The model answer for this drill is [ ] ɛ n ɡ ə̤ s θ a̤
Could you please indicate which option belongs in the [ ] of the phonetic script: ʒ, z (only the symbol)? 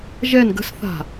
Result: ʒ